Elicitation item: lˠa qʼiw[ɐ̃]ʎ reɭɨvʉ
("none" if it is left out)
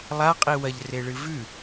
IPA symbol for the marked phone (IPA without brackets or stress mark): ɐ